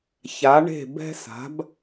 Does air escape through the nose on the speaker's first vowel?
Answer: no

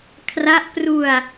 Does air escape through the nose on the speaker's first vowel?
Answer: no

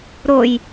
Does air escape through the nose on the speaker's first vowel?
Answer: no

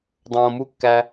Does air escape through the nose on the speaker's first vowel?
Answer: yes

